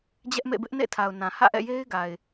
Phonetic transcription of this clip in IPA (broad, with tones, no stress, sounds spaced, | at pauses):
d͡ʑ ɛ˦ ʔ m ḛ˦˨ b ɪ˦ ʔ n ḛ˦˨ tʰ a˨ ʊ̯ n ã˨ h ä̰˦˨ ʔ ɛ̰˦˨ j e˦ ɪ̯ ɡ a˨ ɪ̯